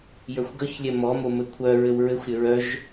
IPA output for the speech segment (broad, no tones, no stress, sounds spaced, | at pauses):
j ə˞ xʷ ɡ œ ç lʲ ɛ m ɔ m o m ɘ kʷʰ œ ɹ ɘ w ɹ ɘ xʷ ɾʲ ɘ ɹ œ ʒ